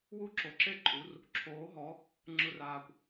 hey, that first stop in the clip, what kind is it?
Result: click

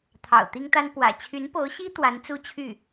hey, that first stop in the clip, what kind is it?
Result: aspirated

